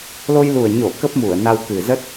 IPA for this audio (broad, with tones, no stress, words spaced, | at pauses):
lo˧jlu˨˩ə̯ɲo˧˩ kə˦˥p̚mu˧˩ə̯na˧w kɨ˨˩zə˦˥t̚